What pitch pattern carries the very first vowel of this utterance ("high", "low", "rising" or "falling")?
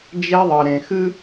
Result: high